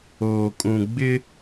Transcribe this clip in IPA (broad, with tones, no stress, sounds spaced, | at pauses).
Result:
oː˨ kʼ ũ˨ ɡ͡b ɪ˦